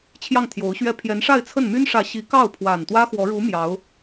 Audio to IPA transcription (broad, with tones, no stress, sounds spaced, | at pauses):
t͡ɕʰ j ɑ˥˩ ŋ t̪ʰ j o˧˥ ʊ̯ ɕ ɥ ɛ˥˩ pʰ j ɛ˧˥ n ʂ a˥˧ ɪ̯ t͡sʰ ə˥˩ n m y˥ n ʂ ä˧˥ ɕ i˧˥ k ɑ˥˩ ʊ̯ pʰ w a˨˩ n t̪ w ä˥ x w ɔ˧˥ ɻ u˧˥ m j ɑ˧˥ ʊ̯